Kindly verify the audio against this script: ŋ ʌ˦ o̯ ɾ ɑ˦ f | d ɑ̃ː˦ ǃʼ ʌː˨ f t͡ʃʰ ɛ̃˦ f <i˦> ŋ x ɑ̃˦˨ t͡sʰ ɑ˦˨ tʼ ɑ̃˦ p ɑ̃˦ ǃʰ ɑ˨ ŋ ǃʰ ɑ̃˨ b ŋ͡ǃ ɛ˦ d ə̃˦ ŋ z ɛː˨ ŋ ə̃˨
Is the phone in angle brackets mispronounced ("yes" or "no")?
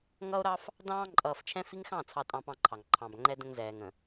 no